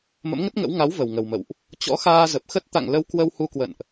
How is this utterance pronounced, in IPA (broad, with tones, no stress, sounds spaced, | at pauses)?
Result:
m ə̰˧˥ m ŋ ə˦˥ t̚ ŋ ə̰˧˥ w ŋ a˨˦ w v ə˨˩ w ŋ ə˨˩ w m ə̰˧˨ w ʔ | t͡ɕ ɔ̰˧˥ x aː˧ z ə˨˩ p̚ x ə˦˥ t̚ t̪ a̰˧˨ ŋ l ə˧ w k w ə˧ w h u˧ k w ə̰˧˨ n ʔ